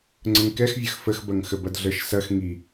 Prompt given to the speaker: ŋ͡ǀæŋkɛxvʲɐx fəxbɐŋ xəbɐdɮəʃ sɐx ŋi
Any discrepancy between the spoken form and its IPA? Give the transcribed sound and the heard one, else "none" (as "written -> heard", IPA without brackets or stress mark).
æ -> ə